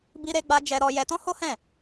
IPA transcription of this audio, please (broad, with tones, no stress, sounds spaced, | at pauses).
b i˦ ɾ e˦ ɡ͡b a˦ d͡ʒ ɛ˦ ɾ ɔ˦ j ɛ˦ t ɔ̃˦ h o˦ h ɛ̃˦˨